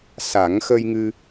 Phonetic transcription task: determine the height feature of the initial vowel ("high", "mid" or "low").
low